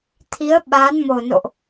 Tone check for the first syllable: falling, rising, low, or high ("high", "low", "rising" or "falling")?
rising